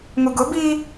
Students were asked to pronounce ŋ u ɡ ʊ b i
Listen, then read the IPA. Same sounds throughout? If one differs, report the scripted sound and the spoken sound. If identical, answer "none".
none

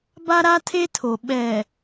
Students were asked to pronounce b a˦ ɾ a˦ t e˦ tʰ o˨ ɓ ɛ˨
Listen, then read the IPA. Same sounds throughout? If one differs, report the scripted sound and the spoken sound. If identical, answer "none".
t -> tʰ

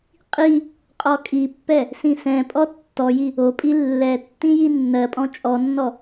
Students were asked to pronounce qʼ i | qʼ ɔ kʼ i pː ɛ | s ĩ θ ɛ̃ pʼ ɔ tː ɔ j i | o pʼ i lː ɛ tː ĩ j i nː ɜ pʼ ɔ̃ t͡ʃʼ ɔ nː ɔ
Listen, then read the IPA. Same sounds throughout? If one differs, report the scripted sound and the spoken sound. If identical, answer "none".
θ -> s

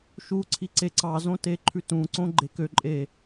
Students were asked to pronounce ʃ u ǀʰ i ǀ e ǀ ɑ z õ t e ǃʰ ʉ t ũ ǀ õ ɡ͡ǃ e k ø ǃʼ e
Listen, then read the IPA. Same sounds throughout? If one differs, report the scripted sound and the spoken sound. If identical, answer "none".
none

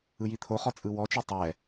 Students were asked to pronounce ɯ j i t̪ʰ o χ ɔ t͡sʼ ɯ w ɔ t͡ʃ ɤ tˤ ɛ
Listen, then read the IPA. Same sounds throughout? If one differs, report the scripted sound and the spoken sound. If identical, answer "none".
none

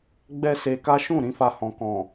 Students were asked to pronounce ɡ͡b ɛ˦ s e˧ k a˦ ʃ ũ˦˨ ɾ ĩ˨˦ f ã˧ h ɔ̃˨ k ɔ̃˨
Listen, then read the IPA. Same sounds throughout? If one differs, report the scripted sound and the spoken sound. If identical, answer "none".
ã˧ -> a˧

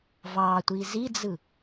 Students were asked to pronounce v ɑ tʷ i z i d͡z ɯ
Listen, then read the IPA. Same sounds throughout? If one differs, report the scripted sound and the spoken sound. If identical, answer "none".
none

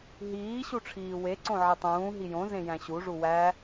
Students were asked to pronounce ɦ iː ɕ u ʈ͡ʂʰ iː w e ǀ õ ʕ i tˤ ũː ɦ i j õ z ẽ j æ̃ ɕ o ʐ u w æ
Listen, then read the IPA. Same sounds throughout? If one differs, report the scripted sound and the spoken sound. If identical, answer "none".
o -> u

